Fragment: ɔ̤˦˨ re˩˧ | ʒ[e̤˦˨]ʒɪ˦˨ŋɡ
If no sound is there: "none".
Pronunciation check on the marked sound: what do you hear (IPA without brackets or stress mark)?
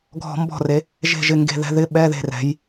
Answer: e̤˦˨